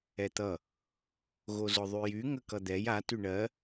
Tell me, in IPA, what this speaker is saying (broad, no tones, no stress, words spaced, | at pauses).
ɛt̪ʌ | ɣozʊðˤyjy ŋəkʌd̪ɛj a tyɳɜ